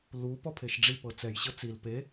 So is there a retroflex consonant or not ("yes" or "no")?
yes